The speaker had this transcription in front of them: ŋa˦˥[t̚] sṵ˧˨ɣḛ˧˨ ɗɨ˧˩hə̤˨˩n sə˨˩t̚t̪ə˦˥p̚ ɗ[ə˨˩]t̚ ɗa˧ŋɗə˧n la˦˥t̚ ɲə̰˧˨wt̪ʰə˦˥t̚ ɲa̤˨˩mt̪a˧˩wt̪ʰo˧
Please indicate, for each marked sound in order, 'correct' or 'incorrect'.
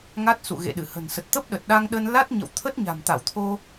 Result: correct, correct

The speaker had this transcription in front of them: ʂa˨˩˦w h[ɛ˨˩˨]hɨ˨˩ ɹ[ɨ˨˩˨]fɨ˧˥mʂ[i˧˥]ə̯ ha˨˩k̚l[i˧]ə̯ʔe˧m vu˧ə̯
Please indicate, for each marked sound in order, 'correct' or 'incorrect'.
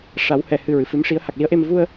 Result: correct, correct, correct, incorrect: i˧˥

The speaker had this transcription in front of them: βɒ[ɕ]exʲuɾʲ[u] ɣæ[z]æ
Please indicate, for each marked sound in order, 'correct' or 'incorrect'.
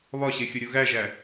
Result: correct, correct, incorrect: ʒ

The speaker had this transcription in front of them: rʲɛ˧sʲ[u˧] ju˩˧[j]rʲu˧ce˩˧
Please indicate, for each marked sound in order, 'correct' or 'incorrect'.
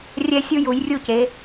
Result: correct, correct

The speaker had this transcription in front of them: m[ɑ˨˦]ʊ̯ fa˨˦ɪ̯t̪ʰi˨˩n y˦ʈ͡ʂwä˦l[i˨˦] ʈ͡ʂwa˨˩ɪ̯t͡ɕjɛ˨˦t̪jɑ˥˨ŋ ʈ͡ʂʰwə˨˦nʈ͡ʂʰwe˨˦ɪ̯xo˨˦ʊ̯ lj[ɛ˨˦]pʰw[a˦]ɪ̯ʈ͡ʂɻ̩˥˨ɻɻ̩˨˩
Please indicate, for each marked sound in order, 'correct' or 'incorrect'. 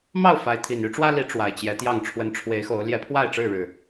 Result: incorrect: ɑ˥˨, correct, correct, incorrect: a˥˨

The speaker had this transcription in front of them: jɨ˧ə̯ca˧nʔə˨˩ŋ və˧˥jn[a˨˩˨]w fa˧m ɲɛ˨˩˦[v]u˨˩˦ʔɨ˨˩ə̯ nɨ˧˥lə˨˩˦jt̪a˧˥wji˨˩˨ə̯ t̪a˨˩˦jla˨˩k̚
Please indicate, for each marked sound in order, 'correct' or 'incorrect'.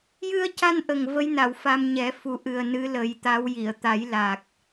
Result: correct, incorrect: f

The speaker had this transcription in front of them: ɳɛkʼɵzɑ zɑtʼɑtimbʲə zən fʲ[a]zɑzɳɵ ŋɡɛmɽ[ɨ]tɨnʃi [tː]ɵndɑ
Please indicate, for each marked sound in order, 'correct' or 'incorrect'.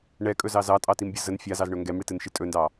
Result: correct, incorrect: i, incorrect: tʼ

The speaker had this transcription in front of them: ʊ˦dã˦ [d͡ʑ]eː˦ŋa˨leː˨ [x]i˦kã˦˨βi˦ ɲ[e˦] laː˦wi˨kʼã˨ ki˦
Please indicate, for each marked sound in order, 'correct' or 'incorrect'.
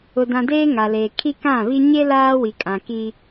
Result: incorrect: d, incorrect: kʰ, correct

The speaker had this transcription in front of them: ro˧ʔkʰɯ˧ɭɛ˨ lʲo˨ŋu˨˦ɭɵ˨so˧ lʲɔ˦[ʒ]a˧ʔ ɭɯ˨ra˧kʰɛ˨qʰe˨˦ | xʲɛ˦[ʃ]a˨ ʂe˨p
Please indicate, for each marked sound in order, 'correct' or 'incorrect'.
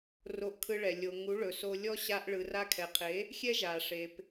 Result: incorrect: ɕ, incorrect: ʒ

